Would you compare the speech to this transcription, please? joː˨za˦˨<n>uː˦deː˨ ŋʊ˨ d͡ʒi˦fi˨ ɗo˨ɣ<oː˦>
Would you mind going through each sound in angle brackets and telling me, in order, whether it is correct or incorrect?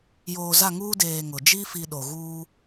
incorrect: ŋ, incorrect: uː˦

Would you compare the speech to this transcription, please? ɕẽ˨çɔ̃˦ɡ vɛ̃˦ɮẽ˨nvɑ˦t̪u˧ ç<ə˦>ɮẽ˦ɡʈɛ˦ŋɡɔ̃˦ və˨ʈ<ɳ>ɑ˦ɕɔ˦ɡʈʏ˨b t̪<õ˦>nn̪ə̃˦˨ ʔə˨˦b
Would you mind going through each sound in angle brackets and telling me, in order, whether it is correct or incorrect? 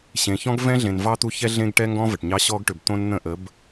incorrect: ɛ˦, incorrect: ɲ, correct

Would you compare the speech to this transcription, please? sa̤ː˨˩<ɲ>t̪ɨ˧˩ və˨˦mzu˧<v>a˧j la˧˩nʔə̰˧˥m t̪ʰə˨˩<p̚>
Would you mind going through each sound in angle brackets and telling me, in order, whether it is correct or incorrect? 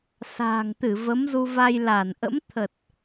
incorrect: ŋ, correct, incorrect: t̚

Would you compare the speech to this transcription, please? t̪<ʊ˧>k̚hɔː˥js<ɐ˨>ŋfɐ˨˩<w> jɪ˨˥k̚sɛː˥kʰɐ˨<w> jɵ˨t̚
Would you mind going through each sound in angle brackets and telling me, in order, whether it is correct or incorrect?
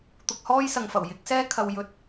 correct, correct, correct, correct

